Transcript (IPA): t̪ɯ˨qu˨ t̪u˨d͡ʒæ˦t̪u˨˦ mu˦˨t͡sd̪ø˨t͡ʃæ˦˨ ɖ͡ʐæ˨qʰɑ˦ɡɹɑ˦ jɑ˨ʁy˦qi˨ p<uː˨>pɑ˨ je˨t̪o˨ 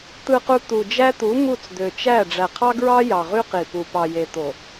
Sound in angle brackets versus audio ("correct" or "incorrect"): incorrect